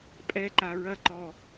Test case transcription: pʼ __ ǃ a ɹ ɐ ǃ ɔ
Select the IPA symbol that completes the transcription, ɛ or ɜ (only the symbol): ɛ